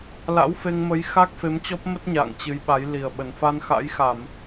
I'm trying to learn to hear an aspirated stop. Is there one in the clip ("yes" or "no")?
no